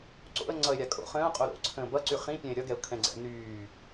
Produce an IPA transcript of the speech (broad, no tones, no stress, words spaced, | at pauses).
ǀo̰ə̯ ŋ͡ǀʌɪ̯ɾʲa kʼo̰ χə̃ːʊ̯qʼo ɾo̰ ǀʰə̃ːbʌǀy χĩpʲɛ̃ɪ̯ ɾʲʌɡɛʊ̯ kʰɛ̃ɡ͡ǀɛ̰ nyː